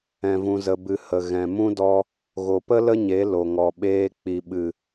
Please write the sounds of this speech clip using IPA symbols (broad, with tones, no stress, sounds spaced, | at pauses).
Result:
ɛ̃˧ v ũ˧ z ə˧ b ɨ˧ h ə˨ ɣ ɛ̃˨ m ũ˦ d ɔ˧ | ɣ o˨ p ə˦ l ə˦ ɲ e˨˦ l o˨ ŋ ɔ˨ ɓ eː˧ k͡p i˨ ɓ ɨ˨